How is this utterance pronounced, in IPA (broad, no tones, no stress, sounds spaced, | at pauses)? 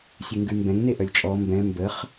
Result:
sʲ ʉ ŋ ɡ ʉ m b ɛ̃ ŋ n e ʔ œ lʲ t͡ʃʼ ɔ m b ɛ̃ m b ə χ